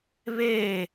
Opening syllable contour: falling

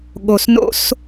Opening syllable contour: low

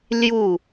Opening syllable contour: falling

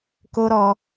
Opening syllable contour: high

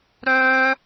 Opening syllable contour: high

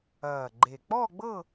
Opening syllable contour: low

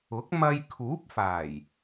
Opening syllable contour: rising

